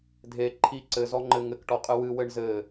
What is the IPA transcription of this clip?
dʱ e ǃʰ i ǀ ɘ z ɔ ŋ͡ǃ ɘ ŋ ɘ k ʈ ɔ qʼ ɨ w ɨ w ɘ ɳ z ɘ

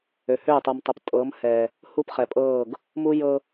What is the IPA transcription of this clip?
ø˨ h ø˦˨ tˤ u˨ m tˤ ə˨ p tʼ ɤ˨˦ m h ɛ˨ | h u˦ p χ ɛ˨ pʼ ɤː˦˨ ɡ | m u˦ j ɤ˦

